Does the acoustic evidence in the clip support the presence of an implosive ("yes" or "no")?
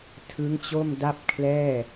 no